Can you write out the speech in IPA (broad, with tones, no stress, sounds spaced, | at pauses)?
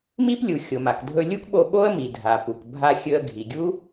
m i˥ p lʲ u˩ xʲ o˩ m a˩ k dʱ ɵ˧ lʲ u˥ k ɓ o˧ ɓ o˥ ə̯ m i˩ dʱ a˩ p u˩ k bʱ a˧ xʲ ɵ˧ ə̯ ɡʱ i˩ ɡʲ u˥